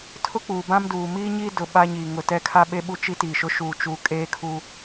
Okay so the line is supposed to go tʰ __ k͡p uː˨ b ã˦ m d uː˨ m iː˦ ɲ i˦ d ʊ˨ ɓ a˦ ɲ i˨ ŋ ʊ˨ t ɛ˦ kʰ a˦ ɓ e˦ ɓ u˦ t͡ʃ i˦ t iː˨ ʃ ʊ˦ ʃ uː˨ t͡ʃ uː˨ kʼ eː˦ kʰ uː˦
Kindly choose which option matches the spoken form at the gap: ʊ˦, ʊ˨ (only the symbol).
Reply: ʊ˦